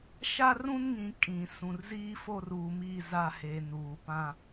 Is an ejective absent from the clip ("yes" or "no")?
no